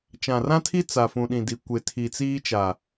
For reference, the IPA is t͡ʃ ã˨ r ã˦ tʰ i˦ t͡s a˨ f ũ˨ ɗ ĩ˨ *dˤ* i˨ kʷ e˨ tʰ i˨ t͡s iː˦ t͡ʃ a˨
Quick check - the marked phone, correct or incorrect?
incorrect